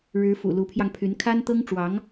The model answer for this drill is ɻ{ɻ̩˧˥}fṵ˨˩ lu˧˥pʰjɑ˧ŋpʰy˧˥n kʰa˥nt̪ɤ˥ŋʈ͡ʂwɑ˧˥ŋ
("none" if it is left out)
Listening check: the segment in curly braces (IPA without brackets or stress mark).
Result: ɻ̩˧˥